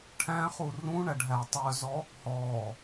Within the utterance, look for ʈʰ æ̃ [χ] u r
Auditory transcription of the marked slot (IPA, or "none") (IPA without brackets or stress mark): χ